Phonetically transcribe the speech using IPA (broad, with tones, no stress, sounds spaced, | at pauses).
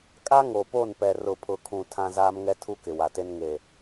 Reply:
kʼ a˦ ŋ o˨ p o˦˨ n p ɛ˨ r ʊ˨ pʰ ʊ˨ kʰ ũ˨ tʰ ã˦ z aː˦ m ŋ ɛ˦ tʰ u˦ k ɪ˨ w a˨ t e˦ n ŋ e˨